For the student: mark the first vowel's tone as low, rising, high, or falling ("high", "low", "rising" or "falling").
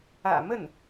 low